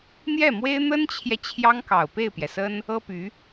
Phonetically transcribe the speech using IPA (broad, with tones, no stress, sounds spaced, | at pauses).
n̪ j ɛ˥˩ m w e˥ ɪ̯ n̪ ə˥ n t͡ɕʰ j ɛ˨ t͡ɕʰ j ɑ˥ ŋ k ɑ˨˩ ʊ̯ p e˥˩ ɪ̯ p j ɛ˩ s ə˥ n | ɤ˥ p y˧˥